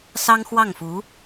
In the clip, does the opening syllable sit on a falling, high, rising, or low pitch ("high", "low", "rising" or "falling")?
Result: high